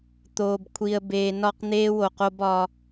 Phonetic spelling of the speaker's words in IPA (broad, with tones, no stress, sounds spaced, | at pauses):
t̪ oː˨ b kʷʰ i˨ ə̯ b eː˨ n ɒ˦˨ q n̪ eː˦ w o˨ q o˦ b ɒ˦